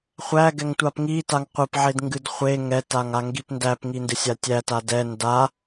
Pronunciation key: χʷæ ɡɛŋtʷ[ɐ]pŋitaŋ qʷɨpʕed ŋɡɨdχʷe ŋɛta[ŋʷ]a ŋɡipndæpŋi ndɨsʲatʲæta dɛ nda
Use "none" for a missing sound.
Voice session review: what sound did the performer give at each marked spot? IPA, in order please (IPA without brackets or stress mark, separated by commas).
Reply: a, ŋ